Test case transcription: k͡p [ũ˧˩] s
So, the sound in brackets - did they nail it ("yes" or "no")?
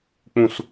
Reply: yes